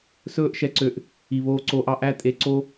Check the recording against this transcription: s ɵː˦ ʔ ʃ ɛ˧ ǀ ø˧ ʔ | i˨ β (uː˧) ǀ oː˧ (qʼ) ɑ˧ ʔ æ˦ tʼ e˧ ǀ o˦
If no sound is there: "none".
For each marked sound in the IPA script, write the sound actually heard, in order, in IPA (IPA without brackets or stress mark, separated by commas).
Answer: oː˧, ʔ